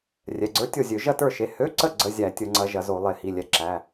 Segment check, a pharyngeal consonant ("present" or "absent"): absent